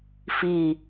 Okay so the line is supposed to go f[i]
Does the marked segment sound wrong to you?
no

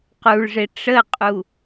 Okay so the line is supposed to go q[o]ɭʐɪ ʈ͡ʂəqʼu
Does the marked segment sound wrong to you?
yes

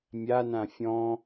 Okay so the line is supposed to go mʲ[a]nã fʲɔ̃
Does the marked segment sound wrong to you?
no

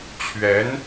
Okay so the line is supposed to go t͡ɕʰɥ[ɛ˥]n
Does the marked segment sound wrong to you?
yes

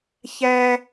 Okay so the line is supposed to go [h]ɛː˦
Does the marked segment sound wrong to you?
yes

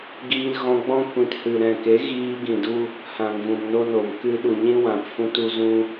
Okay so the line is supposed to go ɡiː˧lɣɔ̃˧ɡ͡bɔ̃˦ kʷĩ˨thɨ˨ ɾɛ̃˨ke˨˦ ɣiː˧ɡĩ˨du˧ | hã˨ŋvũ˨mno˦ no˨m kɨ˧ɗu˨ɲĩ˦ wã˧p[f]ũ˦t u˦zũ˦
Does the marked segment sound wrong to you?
no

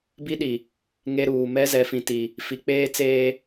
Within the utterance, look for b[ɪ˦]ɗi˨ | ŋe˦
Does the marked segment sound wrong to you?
yes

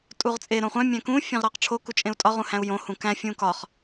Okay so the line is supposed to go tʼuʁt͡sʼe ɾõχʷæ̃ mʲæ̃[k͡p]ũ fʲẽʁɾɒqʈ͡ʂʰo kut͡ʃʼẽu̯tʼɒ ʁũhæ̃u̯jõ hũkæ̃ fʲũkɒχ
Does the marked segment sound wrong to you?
yes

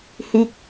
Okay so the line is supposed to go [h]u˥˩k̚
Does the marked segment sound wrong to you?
no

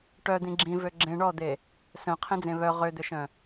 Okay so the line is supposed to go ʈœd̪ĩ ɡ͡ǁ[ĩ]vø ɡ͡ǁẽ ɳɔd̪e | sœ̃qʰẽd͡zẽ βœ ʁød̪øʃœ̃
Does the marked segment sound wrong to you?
no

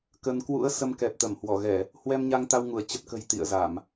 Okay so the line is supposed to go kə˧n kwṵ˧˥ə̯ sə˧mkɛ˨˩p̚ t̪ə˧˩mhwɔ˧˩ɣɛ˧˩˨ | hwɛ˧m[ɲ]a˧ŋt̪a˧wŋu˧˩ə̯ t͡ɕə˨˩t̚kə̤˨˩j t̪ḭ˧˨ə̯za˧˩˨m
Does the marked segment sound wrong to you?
no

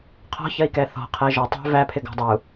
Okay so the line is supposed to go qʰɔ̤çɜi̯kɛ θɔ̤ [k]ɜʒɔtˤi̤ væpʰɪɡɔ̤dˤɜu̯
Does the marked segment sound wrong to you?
yes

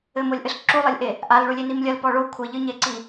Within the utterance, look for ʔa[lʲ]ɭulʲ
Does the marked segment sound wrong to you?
yes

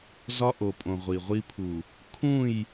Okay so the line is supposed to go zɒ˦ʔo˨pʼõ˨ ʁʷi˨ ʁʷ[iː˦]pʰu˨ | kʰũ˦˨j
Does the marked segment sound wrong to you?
yes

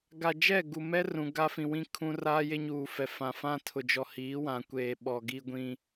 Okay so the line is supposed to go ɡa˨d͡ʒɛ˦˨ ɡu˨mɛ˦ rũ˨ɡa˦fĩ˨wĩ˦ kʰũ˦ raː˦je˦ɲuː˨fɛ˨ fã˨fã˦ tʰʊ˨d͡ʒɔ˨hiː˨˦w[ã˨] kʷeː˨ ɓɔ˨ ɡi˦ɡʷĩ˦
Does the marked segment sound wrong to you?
no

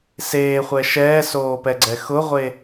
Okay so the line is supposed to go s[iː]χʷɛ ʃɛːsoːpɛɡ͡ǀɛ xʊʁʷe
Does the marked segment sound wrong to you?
yes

